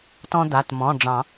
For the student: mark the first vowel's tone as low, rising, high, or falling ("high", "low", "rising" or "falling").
high